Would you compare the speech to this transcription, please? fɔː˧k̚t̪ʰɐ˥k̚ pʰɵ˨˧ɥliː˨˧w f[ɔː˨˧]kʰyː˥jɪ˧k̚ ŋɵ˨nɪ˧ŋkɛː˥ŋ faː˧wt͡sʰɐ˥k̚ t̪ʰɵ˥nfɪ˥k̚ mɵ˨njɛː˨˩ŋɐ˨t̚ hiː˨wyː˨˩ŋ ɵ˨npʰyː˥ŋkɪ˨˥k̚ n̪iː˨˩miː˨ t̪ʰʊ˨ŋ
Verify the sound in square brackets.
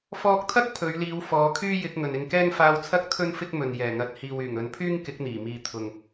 correct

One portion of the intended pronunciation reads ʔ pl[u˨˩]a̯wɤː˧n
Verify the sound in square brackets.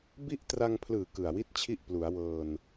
incorrect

